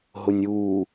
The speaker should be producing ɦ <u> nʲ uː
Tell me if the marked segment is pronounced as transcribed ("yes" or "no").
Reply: no